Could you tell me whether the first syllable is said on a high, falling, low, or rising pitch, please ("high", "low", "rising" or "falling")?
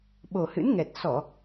low